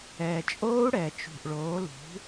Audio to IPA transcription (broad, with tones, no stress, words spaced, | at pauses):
ɛː˨˩t͡ʃʼoː˦˥u̯ ɽɛ˨˩t͡ʃṳ˨˩ʔ ɭoː˩˥lṳ˩˥